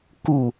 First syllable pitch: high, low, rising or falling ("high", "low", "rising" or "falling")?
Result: falling